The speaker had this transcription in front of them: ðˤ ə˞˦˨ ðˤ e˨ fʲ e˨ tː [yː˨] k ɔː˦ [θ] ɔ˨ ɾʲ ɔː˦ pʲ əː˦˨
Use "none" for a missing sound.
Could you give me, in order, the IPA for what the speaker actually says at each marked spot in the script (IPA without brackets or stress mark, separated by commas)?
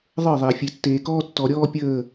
eː˨, tː